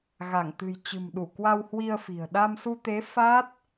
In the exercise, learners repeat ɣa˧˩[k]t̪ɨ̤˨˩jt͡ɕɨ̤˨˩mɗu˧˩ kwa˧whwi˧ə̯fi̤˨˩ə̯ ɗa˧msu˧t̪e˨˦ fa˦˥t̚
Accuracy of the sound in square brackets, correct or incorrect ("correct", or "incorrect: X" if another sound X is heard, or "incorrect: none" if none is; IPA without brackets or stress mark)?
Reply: incorrect: ŋ